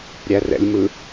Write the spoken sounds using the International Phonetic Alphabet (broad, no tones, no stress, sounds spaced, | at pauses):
ɾʲ æ r ɛ̰ lʲ m ɯ